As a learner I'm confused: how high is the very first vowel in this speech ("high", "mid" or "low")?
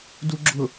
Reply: high